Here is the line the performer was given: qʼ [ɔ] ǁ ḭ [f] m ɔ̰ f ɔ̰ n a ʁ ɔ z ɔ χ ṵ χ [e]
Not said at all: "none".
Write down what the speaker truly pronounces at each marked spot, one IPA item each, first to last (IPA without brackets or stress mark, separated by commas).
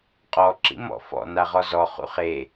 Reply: ɔ, none, e